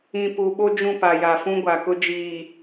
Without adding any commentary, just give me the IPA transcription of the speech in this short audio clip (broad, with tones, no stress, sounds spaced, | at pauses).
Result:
ĩ˨ p u˨ ɓ o˦ d͡ʒ ũ˦˨ p a˨ j a˨ f ũ˦ ɡʷ a˨ k ʊ˦ d͡ʒ iː˨